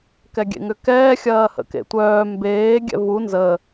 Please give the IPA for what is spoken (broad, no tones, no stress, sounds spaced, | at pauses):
k ɛ ɡʲ ḛ ŋ ʏ k ɛː xʲ ɐː h ə̰ k ḛ tʷ œː m b eː ɡʲ ɛ̰ v u n z ə